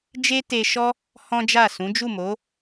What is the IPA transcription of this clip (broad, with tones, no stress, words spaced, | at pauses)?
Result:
d͡ʒe˦te˧ʃɔ˦ | hɔ̃˦d͡ʒa˦˨ sũ˨˦d͡ʒu˦˨mo˨˦